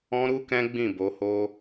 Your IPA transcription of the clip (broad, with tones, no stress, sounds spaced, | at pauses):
ɔ̃˦ ɾ u˦ k ɛ̃˦ ɡ͡b ĩ˦˨ b o˨˦ h o˦